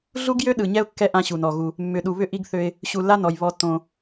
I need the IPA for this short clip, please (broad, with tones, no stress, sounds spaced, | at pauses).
ɮ u˦ ɡ j ø˦ ɗ ɯ˨ ɲ ɛ˦ ʊ̯ kː ɛ˦ ʔ ã˦ ɕ u˨ n ɔ˨ ɣ u˦ | mː ʏ˨ ɗ u˨ β ʏ˦ ʔ i˦ ɡ θ ø˦ ɪ̯ | ɕ u˨ lː a˦ n ɔ˨ j β ɔ˦ tː õ˦